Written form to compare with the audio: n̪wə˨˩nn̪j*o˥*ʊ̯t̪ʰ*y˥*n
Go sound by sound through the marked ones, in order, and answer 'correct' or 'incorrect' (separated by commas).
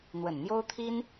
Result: correct, incorrect